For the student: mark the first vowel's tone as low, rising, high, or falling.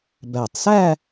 low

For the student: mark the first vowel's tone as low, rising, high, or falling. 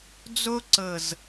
high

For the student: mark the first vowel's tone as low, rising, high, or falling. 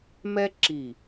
high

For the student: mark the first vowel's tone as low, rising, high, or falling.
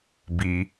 low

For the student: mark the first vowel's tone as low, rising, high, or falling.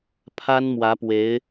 high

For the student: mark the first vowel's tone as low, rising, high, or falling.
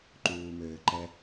low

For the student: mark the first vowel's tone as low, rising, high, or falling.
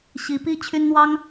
rising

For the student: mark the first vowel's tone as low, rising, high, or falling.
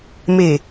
low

